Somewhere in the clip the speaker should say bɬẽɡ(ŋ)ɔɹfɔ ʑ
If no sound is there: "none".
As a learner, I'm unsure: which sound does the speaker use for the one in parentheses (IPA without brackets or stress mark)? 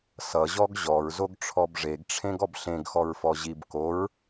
x